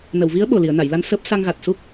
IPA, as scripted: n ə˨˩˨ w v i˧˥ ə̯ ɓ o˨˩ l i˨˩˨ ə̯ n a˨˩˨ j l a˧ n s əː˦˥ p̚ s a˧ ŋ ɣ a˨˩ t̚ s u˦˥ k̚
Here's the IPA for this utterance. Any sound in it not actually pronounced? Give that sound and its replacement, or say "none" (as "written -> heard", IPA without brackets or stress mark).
none